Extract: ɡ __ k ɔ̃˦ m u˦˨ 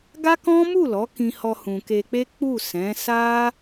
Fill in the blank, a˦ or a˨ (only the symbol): a˦